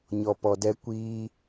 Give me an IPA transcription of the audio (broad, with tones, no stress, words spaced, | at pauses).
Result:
ɲɔ˧pɔ˧dɛ˦ kʷiː˦